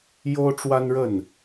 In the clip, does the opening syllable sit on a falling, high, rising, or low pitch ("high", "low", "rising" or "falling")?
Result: high